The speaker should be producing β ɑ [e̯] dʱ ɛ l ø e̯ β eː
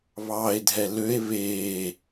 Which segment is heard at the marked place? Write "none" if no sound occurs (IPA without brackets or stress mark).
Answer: e̯